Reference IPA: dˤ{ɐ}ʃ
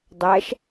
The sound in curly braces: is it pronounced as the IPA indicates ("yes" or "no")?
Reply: no